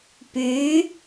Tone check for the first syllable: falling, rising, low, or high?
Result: rising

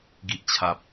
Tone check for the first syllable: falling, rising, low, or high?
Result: low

